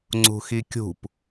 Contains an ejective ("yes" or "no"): no